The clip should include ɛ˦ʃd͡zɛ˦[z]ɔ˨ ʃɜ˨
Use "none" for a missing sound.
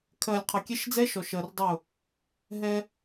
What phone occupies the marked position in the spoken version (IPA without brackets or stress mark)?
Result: ʃ